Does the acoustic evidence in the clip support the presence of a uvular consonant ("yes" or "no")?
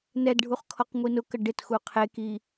yes